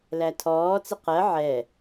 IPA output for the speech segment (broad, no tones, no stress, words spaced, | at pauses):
lætʰɔːt͡sɪ qɜ ʕɛ